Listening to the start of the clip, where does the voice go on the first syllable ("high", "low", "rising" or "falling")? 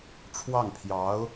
falling